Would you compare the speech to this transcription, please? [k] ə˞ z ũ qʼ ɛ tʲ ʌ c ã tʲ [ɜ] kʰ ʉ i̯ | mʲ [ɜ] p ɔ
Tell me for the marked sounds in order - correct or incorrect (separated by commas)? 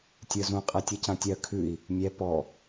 incorrect, correct, incorrect